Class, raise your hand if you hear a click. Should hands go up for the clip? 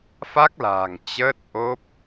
no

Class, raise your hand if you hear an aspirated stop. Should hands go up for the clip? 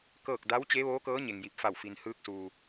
no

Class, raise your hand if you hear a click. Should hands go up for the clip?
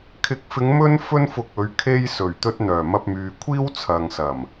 no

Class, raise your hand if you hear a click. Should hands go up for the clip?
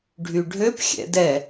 no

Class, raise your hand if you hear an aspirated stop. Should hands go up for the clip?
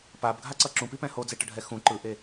no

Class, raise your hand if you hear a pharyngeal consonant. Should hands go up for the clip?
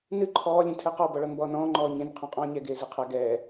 no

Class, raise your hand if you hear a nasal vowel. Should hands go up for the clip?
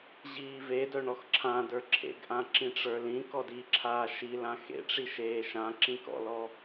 yes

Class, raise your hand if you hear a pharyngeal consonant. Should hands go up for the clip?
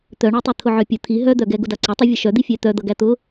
yes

